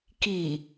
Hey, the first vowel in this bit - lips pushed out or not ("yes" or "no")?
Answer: no